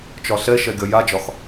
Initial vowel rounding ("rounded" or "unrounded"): rounded